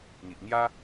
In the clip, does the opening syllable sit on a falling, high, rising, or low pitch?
low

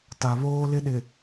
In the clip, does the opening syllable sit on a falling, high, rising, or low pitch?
low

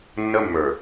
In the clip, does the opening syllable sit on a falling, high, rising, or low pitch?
high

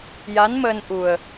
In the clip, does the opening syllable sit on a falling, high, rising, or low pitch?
rising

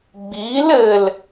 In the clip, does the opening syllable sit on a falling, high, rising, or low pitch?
rising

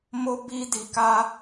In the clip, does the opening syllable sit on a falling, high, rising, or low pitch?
high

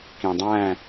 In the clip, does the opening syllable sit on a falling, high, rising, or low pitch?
low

